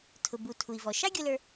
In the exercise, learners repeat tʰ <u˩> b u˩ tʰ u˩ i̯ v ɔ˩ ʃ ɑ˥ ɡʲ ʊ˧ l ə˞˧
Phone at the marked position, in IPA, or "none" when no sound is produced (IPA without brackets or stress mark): ʊ˩